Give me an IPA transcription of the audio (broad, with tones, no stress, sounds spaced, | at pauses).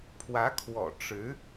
pʰ w ä˧˥ kʰ w ɔ̰˨˩ ʈ͡ʂ ɻ̩˧˥